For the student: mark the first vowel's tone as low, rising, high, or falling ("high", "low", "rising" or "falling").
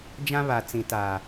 high